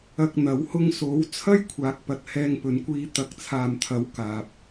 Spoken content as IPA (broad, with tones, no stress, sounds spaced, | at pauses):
ɐ˧ k̚ n̪ ɐ˨˥ w h ʊ˧ ŋ s o˨˥ w t͡sʰ ɐ˥ j kʷʰ aː˨˥ k̚ p ɐ˨ t̚ h ɛː˧ ŋ p ɵ˨˧ n kʷ iː˧ t̪ ɐ˨˥ k̚ t͡sʰ aː˨ m t̪ʰ ɐ˨˥ w k aː˨ p̚